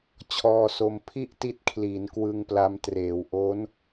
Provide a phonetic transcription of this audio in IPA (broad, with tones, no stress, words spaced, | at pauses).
t͡ɕʰɔː˧so˧m pʰi˥˩ʔti˦˥t̚kʰliː˩˦n kwɯ˧ŋpla˧mtreː˩˦w ʔo˦˥n